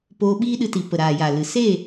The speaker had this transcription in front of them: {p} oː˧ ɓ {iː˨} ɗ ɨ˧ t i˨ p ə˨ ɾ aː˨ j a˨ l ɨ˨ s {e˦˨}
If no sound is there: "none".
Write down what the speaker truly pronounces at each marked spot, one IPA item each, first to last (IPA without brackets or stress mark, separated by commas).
p, iː˦, e˦˨